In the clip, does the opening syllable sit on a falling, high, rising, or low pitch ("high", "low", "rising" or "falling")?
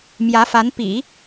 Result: rising